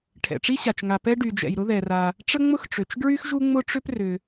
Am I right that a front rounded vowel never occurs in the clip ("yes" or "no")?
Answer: no